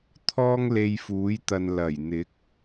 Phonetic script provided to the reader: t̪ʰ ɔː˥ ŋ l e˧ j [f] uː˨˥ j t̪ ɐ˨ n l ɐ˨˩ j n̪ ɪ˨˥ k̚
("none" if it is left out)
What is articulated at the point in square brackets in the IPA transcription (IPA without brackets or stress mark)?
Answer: f